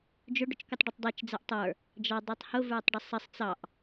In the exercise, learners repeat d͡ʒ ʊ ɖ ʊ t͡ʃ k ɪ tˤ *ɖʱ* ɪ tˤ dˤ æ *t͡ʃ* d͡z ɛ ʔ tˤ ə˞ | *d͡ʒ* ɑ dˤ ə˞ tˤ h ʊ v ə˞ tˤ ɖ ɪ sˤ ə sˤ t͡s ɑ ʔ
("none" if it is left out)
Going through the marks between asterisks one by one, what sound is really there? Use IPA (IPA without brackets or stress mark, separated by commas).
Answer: ɖ, t͡ʃ, d͡ʒ